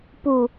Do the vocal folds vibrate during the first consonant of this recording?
no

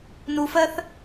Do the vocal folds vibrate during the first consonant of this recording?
yes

